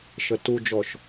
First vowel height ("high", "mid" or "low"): mid